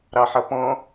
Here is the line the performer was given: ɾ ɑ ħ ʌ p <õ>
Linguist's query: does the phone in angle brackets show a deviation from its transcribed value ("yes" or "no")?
yes